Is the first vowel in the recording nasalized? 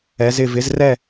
no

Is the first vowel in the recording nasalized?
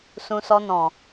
yes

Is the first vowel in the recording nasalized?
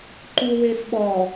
no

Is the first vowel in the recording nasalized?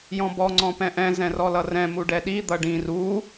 yes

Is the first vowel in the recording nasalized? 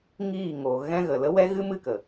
no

